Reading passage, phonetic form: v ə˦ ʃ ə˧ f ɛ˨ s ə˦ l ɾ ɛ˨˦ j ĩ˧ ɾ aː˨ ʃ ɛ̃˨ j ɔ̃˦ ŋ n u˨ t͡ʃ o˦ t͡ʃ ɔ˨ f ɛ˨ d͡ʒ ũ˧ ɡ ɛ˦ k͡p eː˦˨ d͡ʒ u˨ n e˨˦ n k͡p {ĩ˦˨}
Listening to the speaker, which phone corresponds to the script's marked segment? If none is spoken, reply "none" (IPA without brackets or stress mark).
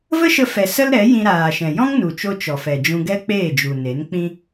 ĩ˦